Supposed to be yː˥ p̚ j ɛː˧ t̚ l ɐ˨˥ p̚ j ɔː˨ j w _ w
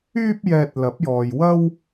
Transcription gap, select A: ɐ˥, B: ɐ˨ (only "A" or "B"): A